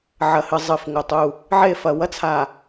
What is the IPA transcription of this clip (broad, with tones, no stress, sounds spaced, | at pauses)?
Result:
ʕ ɐ˨ h ɨ˨ zˤ ɨ˨ f ŋ o˨ tˤ u˦˨ | ʕ e˦˨ f ɐ˨ w ɐ˦ t͡sʰ a˨